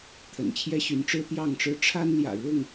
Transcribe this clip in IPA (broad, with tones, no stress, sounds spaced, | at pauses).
t̪ʰ ə̰˨˩ n t͡ɕʰ j ɛ˦ ɕ y˨˦ n ʈ͡ʂ ɻ̩˦ t̪ j ɑ˥˨ ŋ ʈ͡ʂ ɻ̩˦ ʈ͡ʂʰ a˦ n l j ä̰˨˩ ɻ ʊ˥˨ ŋ